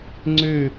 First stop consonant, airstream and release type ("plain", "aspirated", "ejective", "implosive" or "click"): click